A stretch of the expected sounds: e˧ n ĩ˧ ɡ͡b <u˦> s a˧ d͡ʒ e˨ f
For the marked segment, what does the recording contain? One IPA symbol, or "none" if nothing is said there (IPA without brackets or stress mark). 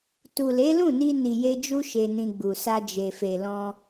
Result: u˨